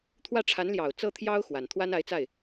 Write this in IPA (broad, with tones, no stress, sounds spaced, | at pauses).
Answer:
t̪ʰ w ä˥˩ ʈ͡ʂʰ a˧˥ n l j ɑ˨˩ ʊ̯ t͡s ɤ˥˩ t̪ʰ j ɑ˥ ʊ̯ x w a˨˩ n t̪ʰ w a˥ n a˧˥ ɪ̯ t͡s a˥˩ ɪ̯